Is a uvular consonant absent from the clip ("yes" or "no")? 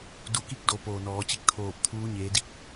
yes